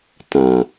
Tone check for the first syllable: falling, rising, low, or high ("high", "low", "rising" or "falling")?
low